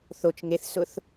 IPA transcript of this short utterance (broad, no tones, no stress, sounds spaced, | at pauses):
θ o t͡ʃ ŋ e θ s ʊ θ